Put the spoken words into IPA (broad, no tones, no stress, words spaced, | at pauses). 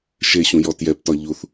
ʃeɕũjɔ tjɛptɒ ʎuθ